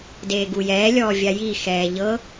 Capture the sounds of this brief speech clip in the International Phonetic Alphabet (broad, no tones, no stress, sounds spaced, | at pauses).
d eː ɡ u j ɛː lʲ ɔː vʲ a j i x ɛː ʎ ɤ